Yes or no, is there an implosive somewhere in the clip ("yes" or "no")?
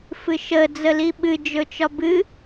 yes